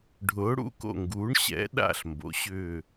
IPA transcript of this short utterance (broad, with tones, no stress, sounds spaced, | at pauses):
ɖʱ ʊː˩˧ ɽ ṵ˨˩ k o̰˨˩ ŋ ɡ uː˩˧ ɳ ɕ ɛ̰˩˧ ɗ a̰˨˩ ɬ m b o̰˩˧ ɕ ʏː˨˩